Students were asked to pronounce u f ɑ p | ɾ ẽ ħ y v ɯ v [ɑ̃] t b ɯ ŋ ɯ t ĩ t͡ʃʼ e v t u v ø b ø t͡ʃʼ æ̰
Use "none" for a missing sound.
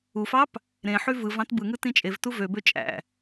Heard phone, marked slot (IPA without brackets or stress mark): ɑ̃